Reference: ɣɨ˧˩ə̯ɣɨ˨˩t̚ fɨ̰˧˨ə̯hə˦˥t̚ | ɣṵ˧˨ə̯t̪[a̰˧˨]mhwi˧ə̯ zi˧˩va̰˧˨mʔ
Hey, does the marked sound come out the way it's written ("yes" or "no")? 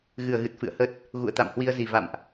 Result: yes